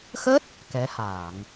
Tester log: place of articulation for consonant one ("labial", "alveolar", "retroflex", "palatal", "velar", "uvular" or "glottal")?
velar